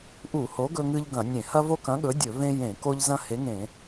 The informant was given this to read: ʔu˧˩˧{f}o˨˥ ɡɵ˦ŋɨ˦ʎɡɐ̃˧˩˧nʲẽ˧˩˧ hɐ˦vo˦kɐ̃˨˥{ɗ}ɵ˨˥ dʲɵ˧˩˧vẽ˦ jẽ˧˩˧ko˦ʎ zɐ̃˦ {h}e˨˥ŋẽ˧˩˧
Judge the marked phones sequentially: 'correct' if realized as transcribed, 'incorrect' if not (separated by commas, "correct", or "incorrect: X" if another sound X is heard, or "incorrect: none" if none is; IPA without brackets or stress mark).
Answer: incorrect: h, incorrect: ɠ, correct